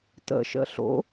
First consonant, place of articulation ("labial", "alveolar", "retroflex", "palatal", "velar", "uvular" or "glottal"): alveolar